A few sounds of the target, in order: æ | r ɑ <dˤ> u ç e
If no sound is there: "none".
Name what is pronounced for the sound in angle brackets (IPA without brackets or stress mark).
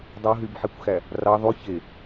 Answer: ðˤ